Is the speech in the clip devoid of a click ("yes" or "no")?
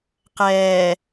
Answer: yes